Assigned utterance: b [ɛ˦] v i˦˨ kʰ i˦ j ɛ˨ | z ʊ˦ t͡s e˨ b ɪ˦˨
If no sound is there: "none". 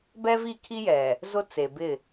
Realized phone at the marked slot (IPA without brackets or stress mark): ɛ˦